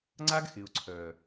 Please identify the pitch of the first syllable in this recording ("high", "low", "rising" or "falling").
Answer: high